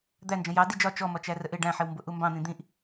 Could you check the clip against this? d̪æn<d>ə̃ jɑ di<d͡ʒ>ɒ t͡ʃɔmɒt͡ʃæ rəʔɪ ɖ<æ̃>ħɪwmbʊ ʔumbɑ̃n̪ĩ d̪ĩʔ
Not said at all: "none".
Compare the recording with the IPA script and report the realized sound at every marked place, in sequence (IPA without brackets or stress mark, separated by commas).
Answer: d͡ʒ, d͡ʒ, æ̃